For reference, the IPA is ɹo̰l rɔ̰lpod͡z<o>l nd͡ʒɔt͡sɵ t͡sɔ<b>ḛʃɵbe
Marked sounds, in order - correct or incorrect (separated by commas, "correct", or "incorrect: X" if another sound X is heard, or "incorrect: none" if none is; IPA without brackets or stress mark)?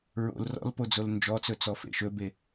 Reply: correct, incorrect: f